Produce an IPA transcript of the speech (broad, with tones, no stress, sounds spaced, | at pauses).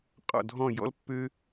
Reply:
qʼ ɔ̰˥˧ dʱ ɔ̃˥˧ j ɔ̰˥ l pː ø˥